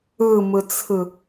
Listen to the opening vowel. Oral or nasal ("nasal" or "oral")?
oral